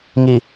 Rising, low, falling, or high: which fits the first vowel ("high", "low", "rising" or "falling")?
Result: low